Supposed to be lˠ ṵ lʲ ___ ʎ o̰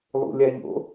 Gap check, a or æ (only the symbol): a